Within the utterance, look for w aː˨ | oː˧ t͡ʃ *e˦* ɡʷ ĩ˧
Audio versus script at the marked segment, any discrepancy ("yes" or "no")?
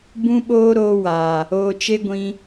no